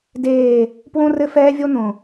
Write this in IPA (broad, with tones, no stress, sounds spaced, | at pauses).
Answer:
d eː˦˨ | p w õ˦ r ɘ˦ f ɛː˦ vʲ o˦ n̪ õ˨